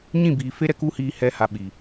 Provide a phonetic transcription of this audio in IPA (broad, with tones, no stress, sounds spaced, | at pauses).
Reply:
ɲ ĩ˦˨ b iː˨ f e˦ ɾ ɛ˨ k u˦ h iː˧ h ɛ˦ h a˧ ɓ i˨